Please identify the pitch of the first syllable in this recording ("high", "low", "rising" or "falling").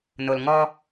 low